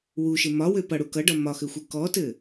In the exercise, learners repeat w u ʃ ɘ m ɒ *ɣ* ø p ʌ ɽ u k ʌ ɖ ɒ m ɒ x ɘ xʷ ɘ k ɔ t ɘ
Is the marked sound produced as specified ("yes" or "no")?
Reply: no